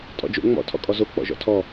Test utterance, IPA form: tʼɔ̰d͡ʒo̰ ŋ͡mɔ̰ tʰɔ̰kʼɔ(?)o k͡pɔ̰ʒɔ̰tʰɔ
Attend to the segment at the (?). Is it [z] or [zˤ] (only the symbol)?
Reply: z